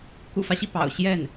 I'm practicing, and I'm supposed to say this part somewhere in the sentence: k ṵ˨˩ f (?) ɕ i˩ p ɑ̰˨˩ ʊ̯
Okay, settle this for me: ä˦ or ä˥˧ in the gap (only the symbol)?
ä˦